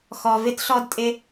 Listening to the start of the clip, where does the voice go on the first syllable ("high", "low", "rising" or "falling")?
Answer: low